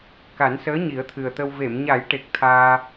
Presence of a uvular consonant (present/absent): absent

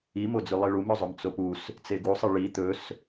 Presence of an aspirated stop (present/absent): absent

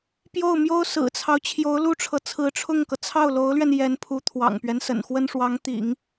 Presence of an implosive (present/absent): absent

